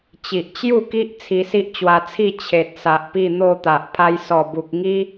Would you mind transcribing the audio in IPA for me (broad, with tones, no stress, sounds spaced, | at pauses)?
t͡ɕ i˨ ʔ t͡ɕ j u˥˧ k i˦ ʔ t͡sʰ i˧ s i˦ ʔ t͡ɕ w a˧ t͡sʰ i˥˧ t͡ɕʰ e˨ t̚ s a˨ ʔ p i˥˧ n̪ o˥˧ t̪ a˨ ʔ pʰ a˧ j s ɔ˨˩ b u˨ k̚ ŋ i˦